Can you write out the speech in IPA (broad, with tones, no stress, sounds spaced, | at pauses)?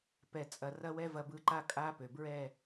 p ɛ˨ t͡sʼ ɐ˨ r ɐ˦ w ɛ˦ v ɐ˨ b ɯ˨ ǃ a˦ kʼ a˦ p ø˨ b ɹ ɛ˦˨